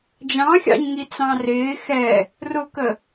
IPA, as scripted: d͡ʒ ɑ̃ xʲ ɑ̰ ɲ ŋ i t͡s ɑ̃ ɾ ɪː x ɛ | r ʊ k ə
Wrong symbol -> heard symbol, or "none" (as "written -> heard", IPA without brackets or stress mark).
ɾ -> r